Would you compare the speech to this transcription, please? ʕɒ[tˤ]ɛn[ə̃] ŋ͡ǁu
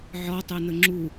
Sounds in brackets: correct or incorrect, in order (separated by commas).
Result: correct, incorrect